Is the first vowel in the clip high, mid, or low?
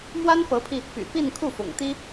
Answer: low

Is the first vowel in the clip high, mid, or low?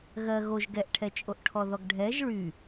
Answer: mid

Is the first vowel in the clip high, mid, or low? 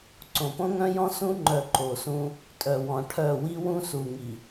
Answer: mid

